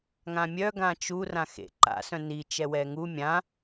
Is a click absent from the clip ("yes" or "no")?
no